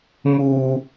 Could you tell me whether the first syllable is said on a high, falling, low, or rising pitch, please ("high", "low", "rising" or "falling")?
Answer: high